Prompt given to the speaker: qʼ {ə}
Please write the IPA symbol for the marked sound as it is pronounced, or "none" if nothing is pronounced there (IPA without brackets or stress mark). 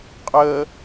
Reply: ə